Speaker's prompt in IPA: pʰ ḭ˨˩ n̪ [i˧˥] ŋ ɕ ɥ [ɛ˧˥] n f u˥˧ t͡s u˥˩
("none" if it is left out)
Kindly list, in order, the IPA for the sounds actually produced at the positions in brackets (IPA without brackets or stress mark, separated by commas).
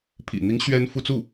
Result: i˧˥, ɛ˥